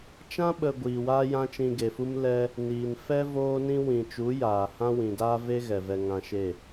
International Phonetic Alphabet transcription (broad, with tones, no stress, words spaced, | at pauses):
t͡ʃã˦ɓə˨ ɡʷiː˨waː˦jã˦ t͡ʃĩ˧ɡe˨fu˦m lɛ˦ | niː˨n fɛ˦ voː˦nĩ˦ wĩ˨t͡ʃu˨˦ jaː˨hã˦ wĩ˨daː˦ve˦ ɣɛ˨vɛ˧ ŋã˧ʃe˦˨